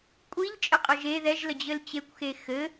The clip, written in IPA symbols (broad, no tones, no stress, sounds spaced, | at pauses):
kʷʼ i ʎ t͡ʃʼ ɘ qʼ ə ʒ e ð ɛ ʒ l ə d͡ʑ ɘ l t͡ɕ e kʷ x e x ɘ